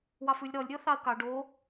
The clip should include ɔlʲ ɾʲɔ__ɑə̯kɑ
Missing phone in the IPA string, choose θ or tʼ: θ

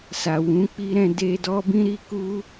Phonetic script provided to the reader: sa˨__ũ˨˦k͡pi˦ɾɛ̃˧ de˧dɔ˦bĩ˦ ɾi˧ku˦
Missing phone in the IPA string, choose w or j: w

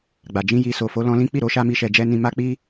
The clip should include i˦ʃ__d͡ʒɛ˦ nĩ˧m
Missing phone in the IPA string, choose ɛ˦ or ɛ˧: ɛ˧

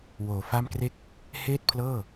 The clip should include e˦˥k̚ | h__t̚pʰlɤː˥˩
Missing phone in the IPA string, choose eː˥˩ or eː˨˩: eː˥˩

